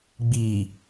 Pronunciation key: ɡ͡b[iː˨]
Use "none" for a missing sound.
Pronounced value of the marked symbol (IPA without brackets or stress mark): iː˨